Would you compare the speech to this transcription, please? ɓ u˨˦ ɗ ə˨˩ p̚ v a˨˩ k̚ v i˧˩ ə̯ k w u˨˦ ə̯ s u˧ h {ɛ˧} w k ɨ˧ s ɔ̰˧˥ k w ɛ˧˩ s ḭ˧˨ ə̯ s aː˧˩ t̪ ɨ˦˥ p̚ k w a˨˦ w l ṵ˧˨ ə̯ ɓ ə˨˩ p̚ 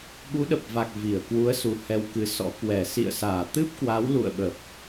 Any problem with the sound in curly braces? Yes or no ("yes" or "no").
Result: no